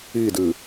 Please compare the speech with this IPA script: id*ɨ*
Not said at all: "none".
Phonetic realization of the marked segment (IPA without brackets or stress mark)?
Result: ɨ